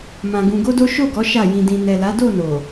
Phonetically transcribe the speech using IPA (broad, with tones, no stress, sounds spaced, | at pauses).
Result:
m ã˧ ɡ ũ˧ ɡ o˦ d o˦ ʃ o˦˨ ɡ ɔ˨˦ ʃ a˦˨ j ĩ˧ d ĩ˧ n ɛ˨ l a˨˦ d o˦˨ n o˨